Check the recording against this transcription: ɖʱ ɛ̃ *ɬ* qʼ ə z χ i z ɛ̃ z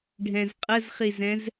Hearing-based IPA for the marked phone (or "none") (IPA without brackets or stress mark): z